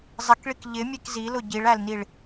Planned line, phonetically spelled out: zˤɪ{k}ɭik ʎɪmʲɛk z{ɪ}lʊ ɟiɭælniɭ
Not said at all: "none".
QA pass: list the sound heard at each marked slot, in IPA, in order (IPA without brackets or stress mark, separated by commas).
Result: k, i